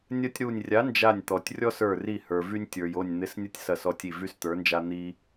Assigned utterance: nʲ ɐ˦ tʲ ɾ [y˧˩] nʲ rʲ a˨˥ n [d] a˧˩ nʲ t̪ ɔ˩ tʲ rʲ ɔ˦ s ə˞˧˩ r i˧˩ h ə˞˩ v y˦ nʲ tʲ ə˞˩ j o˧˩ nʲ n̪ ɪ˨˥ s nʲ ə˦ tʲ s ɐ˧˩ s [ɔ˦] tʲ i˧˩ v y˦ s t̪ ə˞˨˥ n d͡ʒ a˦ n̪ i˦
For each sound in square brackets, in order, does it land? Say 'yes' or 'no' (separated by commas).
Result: no, no, no